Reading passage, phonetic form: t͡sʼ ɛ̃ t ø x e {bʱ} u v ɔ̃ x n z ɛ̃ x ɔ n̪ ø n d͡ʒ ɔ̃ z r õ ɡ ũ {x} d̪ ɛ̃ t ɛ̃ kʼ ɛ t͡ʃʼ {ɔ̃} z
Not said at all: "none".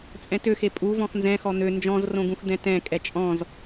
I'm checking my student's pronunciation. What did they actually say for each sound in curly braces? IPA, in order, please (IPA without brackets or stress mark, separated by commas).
pʼ, x, ɔ̃